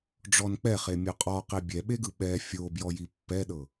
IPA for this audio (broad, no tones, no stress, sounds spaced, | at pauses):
ɖ͡ʐ ɔ n k͡p ɛ χ e mʲ ɔ qʼ ɔ q e bʲ ɛ ɓ e ɡ ɯ ɓ ɛ fʲ o b j ɔ j i pː ɛ ɗ ɤ